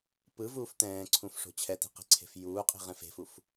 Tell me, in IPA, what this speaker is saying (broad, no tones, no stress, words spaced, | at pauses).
pɯvuːf tɛ̃ːǀʰũfʂo̤ t͡ɕʰɛti̤qe̤ǀʰe̤f juːqʼi̤ʁɛ̃f e̤fuf